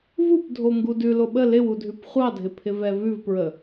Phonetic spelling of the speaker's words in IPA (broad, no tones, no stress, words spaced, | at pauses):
vupdʱo ŋɡudʉ loɓə lɪwudʱʉp χʷɑdʱɪpʰɪ vɛvʉvpɹə